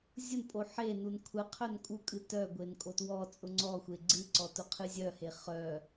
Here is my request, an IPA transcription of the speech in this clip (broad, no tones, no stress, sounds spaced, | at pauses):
zʲ ʊ n pʼ o ħ e n u n kʷʰ ɛ qʰ œ n kʼ u kʼ ɨ t œ ɡʷ e n kʼ o t w ɔ t͡sʼ ʊ ŋ͡ǀ ɔ xʷ e ɡ͡ǀ ɨ ǀ ɔ t ʊ qʰ ɨ zʲ œ h e χ œ